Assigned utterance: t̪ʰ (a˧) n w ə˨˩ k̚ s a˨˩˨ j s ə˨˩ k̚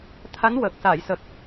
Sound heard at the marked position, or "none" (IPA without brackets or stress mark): a˧˥